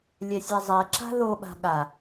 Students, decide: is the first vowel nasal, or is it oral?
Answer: oral